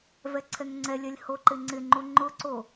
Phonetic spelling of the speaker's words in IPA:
v ɛ ǀʰ ɛ ŋ ŋ͡ǀ ɛ lʲ ɛ lʲ h o ǃ ɪ ŋ͡ǀ ɪ ŋ͡ǃ u ŋ͡ǃ ʊ ǀ o

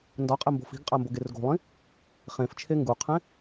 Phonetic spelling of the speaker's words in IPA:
n d ɒ qʼ e m b o̤ f i̤ ɡ qʼ æ m b o ɡ e r ɡ o̤ lˠ ĩ | χ ẽ f t͡ʃʰ e ŋ ɡ u qʰ ẽ

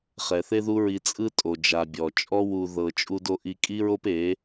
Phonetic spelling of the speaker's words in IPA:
χ ɛ˨ θ e˦ ð u˦ ɹ i˧ t͡sʼ ɯ˦ tʼ o˨ d͡ʒ a˨ bʲ ɔ˨ t͡ʃʼ ɔ˦ w u˧ ð ɤ˨ t͡ʃʼ u˧ d o˧ ʔ i˧ kʼ i˦ ɹ o˦ p e˨˦

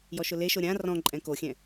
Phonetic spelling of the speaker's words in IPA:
j ɔ ʃ ʊ l e ʃ o ɾʲ ã r ɔ̃ ǃʼ ɛ̃ k o xʲ ɛ̃

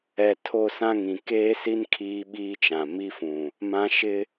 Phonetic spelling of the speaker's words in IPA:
ɛ˨ tʰ o˦˨ s ã˦ ŋ ĩ˨ k eː˦ s i˦ n kʰ iː˦ ɓ iː˦ t͡ʃ ã˨ m i˦ f ũ˨ | m ã˦ ʃ ɪ˦

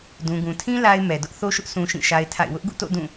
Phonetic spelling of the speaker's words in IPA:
d ũ˨ ɡ ũ˨ tʰ ĩ˦ l a˦ ɪ̯ m ɛ˨ d ʊ˦ ʔ θ o˦ ʃ ʊ˦ ʔ s ũ˦ ʃ ĩ˦˨ ʃ a˦ ɪ̯ tʰ a̰˦˨ ɪ̯ w ʊ˦ ʔ ɡ ṵ˦˨ t o̰˦˨ d ũ˦˨

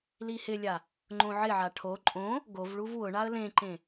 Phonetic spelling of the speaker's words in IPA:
l i h ɪ lʲ a | ŋ͡ǃ õ ʕ ɪ ʕ a ʈʰ o ǃʼ õ | ɡ o v ɭ u v w ʊ ɳ a ə̯ l ẽ ǃ ẽ

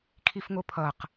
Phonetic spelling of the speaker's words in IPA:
kʰ i f ŋ o pʰ ʌ q

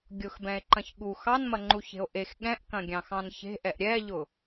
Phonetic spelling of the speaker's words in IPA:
ɡʲ ʊ x b ɛ̃ e̯ ǃ ɐ̃ ç ɠ u x ɑ n m ɐ ŋ͡ǃ u ç e̤ o̯ ʔ e x ɠ ɛ̃ ʔ k ɐ̃ ɡʲ ɑ̃ x ɑ̃ n ç e̤ ʔ ɛ ʔ ɾʲ ɛ ʎ ʊ

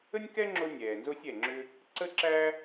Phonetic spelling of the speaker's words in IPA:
ə˥ nʲ k ɛ˥ ŋ͡ǁ o˥ nʲ ɛː˩ n z o˥ sʲ ɛ˩ ŋ͡ǁ ʏ˥ | ǀ ə˥ ǁ æ˥

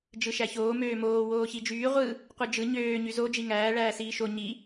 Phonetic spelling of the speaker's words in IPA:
d͡ʒ ɯ ʃ æ ç oː m øː m oː w oː ç i d͡ʒ yː ʁʷ ɯ | qʷ ɯ d͡ʒ ɯ ɲ øː ɲ y z o d͡ʒ i ŋ æː ɭ æː s iː ʃ o ɲ i

